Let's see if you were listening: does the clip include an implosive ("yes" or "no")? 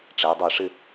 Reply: no